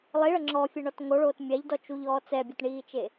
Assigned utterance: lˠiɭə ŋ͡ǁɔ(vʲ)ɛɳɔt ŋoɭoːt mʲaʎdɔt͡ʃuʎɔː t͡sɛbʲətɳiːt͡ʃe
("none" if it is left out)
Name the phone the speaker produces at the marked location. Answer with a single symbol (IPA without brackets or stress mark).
fʲ